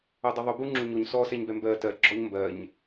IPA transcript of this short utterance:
o dˤ ʏ ðˤ ʏ b u ŋ͡ǁ u ɲ o ɲ s ɔ s ɛ ɲ b ɛ m b ɜ t ɜ ɡ͡ǁ ɔ ɲ m b ɜ ɲ

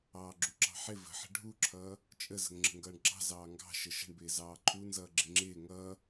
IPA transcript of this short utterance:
ɑː ɡ͡ǁ u ǁ ɑ̤ ħ ɪ v ə̤ ħ ə̤ ɖʱ u ǁʰ ʌː | t͡ʃʼ ə z ə̤ ŋ ŋ͡ǁ ə̤ ŋ ɡ ʌː ɳ ɡ͡ǁ ɑ̤ z ɑː ŋ ɡ ɑ̤ ʃ ə ʃ ə̤ ɳ b ɪː z ɑː ǃʰ u n z ʌː ɡ͡ǁ ɪ ŋ͡ǁ ɪː ŋ ʌː

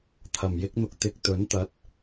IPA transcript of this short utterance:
t̪ʰ ɐ˨˩ m j ɪ˥ k̚ n̪ ʊ˧ k̚ t̪ ɪ˧ k̚ t̪ ɵ˨˥ n t̪ ɐ˨˥ t̚

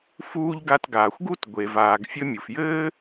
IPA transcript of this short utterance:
f uː˧ ʎ ɡ a˧ t ɡ aː˩ xʷ ɡ u˥ t ɡʷ e˩ v aː˩ ɡ fʲ ɘ˧ mʲ u˩ f j ɘː˥

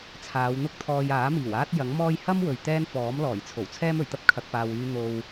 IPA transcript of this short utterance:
t͡sʰ aː˨˧ w n̪ ʊ˥ k̚ t̪ʰ ɔː˧ j aː˨˥ m iː˨˩ w aː˥ t̚ j ɐ˨˥ ŋ m ɔː˥ j h ɐ˥ m w ɵ˨ ɥ t̪ ɛː˥ n f ɔː˨˥ m l ɔː˨˩ j t͡sʰ o˨˩ w t͡sʰ ɛː˥ m ɵ˨˩ ɥ t̪ ɐ˥ p̚ kʰ ɐ˨ k̚ p aː˨ w yː˧ n̪ o˧ w

